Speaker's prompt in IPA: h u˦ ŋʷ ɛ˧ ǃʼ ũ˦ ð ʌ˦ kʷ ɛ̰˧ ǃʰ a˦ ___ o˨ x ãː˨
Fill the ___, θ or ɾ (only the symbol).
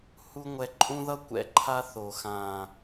θ